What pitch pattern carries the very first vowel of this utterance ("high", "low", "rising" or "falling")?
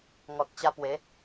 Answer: low